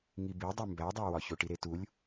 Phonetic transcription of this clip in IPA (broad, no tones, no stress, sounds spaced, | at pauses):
ŋ i b i dˤ u m b æ dˤ æ w ɒ ç o ʈ i ɾ e t u lʲ